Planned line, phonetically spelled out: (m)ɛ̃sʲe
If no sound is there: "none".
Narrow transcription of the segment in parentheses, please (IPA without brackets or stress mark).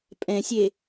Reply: pʼ